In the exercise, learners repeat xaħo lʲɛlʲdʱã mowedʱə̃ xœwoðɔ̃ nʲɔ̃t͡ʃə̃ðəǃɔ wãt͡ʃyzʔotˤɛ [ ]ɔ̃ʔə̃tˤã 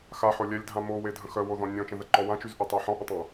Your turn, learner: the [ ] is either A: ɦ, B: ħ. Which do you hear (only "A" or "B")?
B